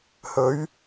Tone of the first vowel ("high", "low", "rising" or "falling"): rising